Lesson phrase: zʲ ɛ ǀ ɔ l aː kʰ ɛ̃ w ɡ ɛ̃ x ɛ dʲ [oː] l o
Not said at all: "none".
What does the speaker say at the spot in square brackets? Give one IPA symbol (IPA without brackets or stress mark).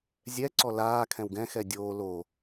oː